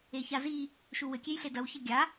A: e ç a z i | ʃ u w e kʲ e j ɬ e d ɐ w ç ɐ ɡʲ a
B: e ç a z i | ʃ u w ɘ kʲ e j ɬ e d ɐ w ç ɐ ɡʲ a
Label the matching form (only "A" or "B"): B